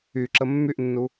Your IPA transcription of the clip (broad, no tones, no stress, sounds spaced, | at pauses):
y ǁ ə mː y ʔ nː u